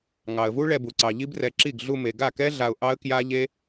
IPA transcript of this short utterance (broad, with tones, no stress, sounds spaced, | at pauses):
ŋ ɑ˨ ə̯ v u˦ ɭ ɛ˧ b u˨ ǀ ɑ˨ ʎ i˦ b r ɛ˧ ǁ i˦˨ ɡ ɮ u˧ m e˨ ɡ a˦˨ k ɛ˦ ɮ a˧ ʊ̯ ʔ ɑ˦ ə̯ k j a˦ ʎ e˦